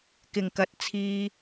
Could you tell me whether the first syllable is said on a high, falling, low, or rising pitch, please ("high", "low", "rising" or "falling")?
low